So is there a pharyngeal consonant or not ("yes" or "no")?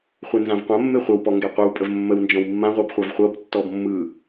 no